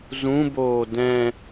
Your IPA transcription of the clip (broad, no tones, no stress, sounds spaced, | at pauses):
z ũ b oː d ɛ̃